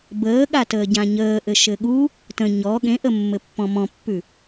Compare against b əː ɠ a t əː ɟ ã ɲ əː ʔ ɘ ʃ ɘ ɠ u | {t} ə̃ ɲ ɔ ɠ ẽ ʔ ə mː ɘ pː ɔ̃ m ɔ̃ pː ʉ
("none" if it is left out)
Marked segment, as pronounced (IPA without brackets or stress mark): t